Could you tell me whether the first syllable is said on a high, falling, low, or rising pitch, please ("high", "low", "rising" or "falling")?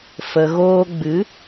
low